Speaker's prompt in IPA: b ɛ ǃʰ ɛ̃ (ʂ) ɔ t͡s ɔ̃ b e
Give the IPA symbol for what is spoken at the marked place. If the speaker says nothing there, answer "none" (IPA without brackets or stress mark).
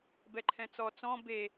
t͡s